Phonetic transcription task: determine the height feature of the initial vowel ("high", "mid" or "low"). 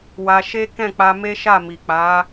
low